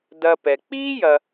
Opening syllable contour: low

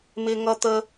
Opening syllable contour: high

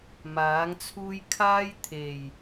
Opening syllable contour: rising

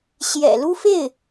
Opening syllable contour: low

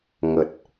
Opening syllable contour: low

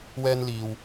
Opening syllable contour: high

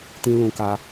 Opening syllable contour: high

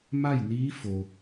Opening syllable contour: falling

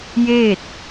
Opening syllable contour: falling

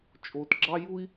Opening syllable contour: low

